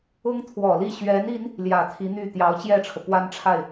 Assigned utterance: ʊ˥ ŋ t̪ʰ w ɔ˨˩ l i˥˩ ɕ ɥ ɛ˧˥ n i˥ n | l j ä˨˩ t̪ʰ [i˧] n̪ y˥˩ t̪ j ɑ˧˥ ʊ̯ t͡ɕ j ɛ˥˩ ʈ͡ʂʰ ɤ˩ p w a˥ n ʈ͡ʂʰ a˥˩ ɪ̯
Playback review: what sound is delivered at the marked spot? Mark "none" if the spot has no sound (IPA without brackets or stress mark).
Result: i˧˥